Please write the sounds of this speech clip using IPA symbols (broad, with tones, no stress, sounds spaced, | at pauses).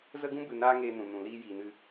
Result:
z ə˦ ɡ ũ˦ b ɨ˧ n aː˦ ŋ eː˧ n ũ˨ n ũ˨ l iː˧ j iː˨ n ɨ˧